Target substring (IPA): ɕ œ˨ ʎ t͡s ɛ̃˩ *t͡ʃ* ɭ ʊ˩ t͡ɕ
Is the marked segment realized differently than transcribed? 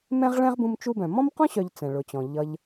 yes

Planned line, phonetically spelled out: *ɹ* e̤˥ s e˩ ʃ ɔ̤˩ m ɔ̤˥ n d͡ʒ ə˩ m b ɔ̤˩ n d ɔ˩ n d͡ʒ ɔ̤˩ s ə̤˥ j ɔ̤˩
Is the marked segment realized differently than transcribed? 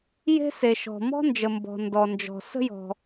yes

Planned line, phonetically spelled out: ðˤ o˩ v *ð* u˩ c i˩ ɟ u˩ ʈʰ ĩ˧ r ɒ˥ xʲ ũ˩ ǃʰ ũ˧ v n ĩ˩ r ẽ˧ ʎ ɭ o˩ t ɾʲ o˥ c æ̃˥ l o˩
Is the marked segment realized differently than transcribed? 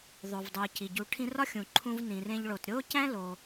yes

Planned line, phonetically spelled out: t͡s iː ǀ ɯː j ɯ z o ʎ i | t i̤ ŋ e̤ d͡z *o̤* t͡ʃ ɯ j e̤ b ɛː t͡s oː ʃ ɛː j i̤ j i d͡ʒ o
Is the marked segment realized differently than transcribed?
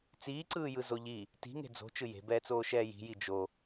no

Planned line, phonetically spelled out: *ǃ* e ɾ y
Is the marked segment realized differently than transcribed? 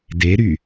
yes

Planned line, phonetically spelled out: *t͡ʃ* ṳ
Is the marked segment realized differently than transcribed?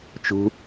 no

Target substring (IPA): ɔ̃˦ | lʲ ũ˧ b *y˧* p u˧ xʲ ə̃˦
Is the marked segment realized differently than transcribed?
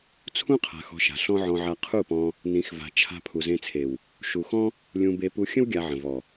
yes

